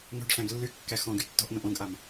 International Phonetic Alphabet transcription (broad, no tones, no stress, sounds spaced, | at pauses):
n o̤ ɖ ɬ æ̃ ɡ lː y kː æ x ɔ̃ ɡ y tː ɔ̤ ʔ n õ ʔ õ ɡ ʔ a m